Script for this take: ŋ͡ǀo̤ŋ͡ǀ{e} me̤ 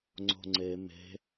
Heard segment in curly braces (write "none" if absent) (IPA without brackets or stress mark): e